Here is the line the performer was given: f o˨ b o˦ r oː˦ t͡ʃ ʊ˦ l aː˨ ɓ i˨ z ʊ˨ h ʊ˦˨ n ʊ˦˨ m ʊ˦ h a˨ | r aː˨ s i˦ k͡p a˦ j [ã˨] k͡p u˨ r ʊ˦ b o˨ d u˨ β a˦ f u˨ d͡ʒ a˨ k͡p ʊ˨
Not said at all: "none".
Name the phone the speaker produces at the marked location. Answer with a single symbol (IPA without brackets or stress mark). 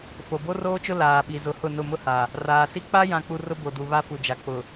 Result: ã˨